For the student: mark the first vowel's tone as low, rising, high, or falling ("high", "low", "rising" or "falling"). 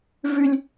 high